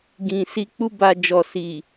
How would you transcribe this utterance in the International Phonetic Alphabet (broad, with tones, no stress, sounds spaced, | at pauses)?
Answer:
ɡ ĩ˨ s i˧ k͡p u˦ b a˧ d͡ʒ ɔ˨ s i˨